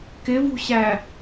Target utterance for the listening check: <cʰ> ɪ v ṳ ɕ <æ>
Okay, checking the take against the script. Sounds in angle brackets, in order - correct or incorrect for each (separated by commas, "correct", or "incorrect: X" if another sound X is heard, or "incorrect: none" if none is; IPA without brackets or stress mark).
incorrect: k, correct